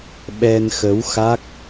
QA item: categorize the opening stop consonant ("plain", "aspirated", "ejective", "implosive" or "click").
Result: implosive